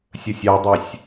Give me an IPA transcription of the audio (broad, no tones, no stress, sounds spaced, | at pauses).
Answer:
sʲ ə sʲ ɑ dˤ ɑ sʲ